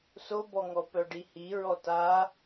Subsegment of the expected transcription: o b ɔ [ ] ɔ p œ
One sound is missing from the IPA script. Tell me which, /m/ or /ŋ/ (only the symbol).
ŋ